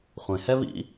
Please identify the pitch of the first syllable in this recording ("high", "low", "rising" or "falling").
low